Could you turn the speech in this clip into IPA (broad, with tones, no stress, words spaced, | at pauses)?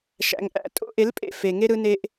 ʃæ̰˨ŋʔæ̰˦ tʼo̰˦ʔe˨˦lpʼḛ˦˨ fe˨ŋe˦ ɾɯ˦ne˦ʔ